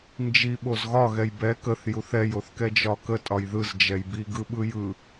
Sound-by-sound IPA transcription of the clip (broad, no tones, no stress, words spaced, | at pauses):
nd͡ʒi ɓozɣɒ ɣɛjbɛ kəθ juθɛj oθkɛd͡ʒɒkə tʼɒjðɯz d͡ʒɛjbi ɡɯɓɯjɯ